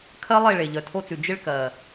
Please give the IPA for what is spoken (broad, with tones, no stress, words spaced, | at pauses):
kʰɜ˦lˠe˦˨ɭe˨ ʎœ˨tʰo˦t͡sʉ˨ d͡ʒɪ˦ɭkɜ˨